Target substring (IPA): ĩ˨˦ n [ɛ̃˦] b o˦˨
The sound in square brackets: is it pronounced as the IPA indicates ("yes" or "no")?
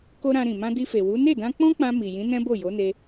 yes